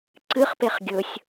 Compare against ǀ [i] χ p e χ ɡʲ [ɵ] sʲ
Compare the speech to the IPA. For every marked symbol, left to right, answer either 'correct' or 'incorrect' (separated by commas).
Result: incorrect, correct